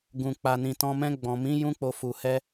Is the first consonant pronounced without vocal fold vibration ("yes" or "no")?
no